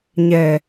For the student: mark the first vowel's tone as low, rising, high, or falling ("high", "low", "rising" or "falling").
low